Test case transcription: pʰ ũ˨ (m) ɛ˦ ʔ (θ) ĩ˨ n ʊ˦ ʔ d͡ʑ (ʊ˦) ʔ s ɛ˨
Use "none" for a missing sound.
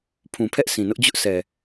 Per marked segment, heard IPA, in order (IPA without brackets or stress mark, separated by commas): pʰ, s, ʊ˦